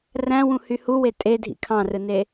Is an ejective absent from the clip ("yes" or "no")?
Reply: no